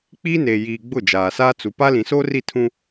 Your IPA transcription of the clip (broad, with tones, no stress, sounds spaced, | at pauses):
k͡p iː˦ n eː˨ j iː˨ ɡ͡b ʊ˦˨ d͡ʒ aː˨ s aː˦ t͡s u˨ p a˦ l ĩ˨ s oː˦ r i˦˨ tʰ ũ˦